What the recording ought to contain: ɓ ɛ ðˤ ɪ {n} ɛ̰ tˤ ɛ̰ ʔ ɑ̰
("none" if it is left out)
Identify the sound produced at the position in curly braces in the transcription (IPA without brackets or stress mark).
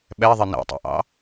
n